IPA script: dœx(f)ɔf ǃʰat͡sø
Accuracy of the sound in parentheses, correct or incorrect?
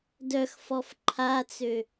correct